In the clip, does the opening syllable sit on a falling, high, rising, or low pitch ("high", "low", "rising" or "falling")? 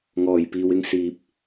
low